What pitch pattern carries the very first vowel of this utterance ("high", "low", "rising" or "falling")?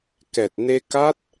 low